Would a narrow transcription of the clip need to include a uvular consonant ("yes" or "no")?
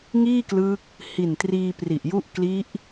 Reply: no